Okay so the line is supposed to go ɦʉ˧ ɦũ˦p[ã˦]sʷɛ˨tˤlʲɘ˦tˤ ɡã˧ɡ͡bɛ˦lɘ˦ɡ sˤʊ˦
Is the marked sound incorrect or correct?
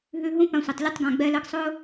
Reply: incorrect